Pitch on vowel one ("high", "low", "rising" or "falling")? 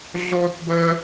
high